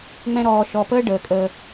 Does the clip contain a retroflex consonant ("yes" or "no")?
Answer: yes